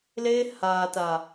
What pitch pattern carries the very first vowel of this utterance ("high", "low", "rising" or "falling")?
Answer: high